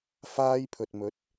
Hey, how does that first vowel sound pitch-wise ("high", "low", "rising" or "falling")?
high